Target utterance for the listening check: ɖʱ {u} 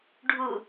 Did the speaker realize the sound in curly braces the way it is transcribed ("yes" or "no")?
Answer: yes